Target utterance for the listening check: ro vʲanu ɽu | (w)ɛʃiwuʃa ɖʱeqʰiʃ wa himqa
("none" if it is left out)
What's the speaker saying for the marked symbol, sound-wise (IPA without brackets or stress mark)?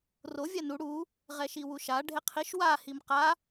ʁ